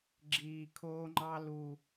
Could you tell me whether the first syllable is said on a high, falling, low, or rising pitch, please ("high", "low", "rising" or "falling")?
low